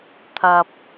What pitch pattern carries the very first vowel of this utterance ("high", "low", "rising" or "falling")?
low